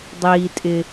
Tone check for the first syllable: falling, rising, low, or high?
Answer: low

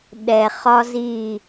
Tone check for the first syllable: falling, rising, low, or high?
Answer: low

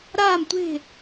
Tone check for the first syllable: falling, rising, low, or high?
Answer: falling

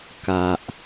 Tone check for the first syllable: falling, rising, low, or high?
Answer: low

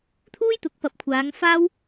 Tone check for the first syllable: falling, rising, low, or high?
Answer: high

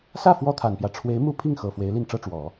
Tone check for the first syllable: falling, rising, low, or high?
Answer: falling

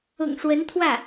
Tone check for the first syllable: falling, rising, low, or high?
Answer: low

